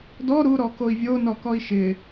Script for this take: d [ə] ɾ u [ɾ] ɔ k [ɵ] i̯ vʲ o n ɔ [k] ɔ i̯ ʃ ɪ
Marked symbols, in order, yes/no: no, yes, no, yes

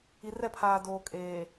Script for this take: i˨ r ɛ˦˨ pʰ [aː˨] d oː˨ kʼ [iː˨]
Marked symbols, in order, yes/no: yes, no

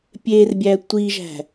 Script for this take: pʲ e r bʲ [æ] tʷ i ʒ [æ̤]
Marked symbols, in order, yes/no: yes, yes

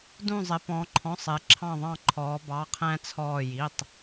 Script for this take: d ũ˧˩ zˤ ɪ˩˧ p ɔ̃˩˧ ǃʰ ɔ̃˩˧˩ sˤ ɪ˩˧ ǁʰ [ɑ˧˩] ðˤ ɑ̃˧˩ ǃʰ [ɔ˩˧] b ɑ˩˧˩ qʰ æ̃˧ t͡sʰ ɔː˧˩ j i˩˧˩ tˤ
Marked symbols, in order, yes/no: no, no

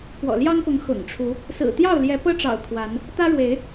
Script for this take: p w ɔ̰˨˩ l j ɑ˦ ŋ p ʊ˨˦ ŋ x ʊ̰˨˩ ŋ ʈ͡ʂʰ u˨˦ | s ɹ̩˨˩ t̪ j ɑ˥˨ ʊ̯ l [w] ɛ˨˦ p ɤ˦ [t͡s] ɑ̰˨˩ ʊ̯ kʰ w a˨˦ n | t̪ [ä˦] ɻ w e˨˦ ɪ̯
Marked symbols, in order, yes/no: no, no, yes

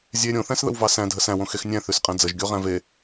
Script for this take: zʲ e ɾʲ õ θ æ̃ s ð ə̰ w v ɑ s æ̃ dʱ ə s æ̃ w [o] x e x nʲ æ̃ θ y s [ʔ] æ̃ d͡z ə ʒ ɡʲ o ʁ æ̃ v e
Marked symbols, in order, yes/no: no, no

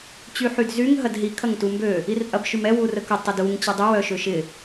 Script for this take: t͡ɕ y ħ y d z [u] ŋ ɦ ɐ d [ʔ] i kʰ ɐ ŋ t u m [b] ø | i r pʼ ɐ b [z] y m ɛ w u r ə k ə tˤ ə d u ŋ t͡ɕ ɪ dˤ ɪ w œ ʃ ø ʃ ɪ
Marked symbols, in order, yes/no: no, no, yes, no

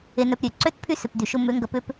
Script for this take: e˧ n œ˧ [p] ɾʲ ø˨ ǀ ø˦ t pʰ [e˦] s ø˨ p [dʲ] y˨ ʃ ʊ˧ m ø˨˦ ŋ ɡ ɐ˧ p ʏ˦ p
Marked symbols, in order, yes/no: yes, no, no

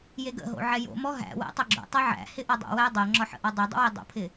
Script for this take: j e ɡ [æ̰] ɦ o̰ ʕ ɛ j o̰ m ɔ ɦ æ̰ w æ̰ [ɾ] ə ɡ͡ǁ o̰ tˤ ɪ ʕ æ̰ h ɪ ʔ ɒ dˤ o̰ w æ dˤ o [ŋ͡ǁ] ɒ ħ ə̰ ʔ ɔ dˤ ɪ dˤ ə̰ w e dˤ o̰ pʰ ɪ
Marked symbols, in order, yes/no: no, no, yes

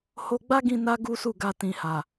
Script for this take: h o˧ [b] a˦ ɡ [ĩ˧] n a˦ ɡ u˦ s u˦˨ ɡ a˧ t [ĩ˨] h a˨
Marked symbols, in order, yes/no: no, yes, yes

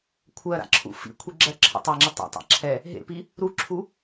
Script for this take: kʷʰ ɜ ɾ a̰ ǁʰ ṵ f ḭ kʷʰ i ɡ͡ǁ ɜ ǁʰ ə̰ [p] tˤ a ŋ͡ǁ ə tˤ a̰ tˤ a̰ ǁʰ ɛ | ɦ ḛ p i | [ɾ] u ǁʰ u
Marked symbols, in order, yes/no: no, yes

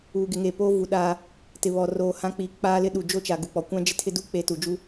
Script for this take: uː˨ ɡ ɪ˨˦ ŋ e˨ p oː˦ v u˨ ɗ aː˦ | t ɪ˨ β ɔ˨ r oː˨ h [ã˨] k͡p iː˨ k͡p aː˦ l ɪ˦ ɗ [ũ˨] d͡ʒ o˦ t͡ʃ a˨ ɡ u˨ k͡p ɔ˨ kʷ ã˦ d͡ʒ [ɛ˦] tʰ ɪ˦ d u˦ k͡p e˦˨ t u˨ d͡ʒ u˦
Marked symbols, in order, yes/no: no, no, no

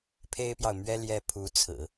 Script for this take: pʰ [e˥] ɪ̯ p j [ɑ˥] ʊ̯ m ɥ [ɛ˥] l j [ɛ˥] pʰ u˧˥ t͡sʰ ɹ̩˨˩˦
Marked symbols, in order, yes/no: yes, no, yes, yes

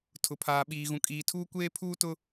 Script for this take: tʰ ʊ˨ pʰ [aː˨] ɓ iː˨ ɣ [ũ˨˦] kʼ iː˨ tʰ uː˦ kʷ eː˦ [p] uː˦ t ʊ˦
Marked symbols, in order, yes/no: yes, no, no

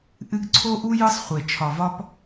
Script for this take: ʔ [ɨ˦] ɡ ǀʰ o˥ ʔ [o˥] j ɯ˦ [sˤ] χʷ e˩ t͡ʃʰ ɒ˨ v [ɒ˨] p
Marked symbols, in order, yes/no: yes, no, yes, no

